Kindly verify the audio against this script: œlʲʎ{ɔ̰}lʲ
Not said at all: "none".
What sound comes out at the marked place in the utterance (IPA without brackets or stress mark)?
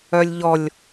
ɔ